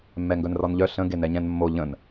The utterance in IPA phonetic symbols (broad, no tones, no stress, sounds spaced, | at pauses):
mː ɛ ŋ ɡ œ n r ɔ n ʎ œ ɬ ə̃ ɡ e n ɛ ɲ ɛ̃ n mː o ʎ ə̃ n